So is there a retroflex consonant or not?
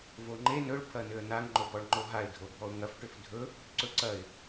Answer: yes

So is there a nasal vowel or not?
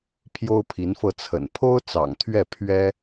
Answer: no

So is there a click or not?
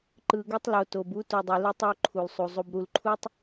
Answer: yes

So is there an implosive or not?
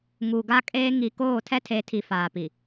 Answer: no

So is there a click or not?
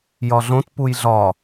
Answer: no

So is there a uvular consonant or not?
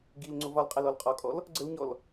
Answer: yes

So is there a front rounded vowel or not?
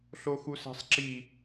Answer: no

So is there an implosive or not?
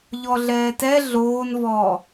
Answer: no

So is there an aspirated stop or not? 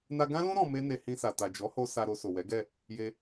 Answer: no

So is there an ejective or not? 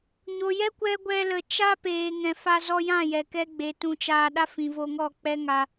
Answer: no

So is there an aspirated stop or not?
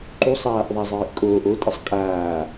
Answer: no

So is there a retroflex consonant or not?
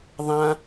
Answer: no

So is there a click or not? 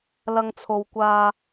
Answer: no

